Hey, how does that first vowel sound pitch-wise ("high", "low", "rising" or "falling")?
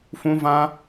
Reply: high